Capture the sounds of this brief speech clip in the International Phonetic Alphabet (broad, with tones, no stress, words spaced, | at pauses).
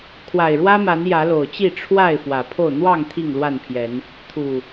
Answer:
kʰwa˨˩ɪ̯ɻwä˦ma˨˦n jä˨˦lo˨˩ʊ̯t͡ɕi˥˨ ʈ͡ʂʰwa˥˨ɪ̯ fwä˨˩pʰo˥˨ʊ̯ n̪wɑ˥˨ŋ t̪ʰi˥˨ŋlwa˥˨npʰjɛ˨˦n | t̪ʰu˨˩